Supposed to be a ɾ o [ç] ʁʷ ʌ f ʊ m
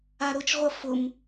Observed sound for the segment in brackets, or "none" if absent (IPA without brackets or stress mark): t͡ʃ